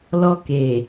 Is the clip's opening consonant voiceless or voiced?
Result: voiced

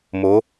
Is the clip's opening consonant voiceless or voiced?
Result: voiced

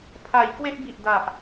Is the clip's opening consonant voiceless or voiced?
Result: voiceless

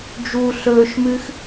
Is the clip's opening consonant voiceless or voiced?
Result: voiced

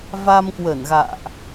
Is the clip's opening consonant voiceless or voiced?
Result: voiced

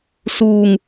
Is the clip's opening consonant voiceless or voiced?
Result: voiceless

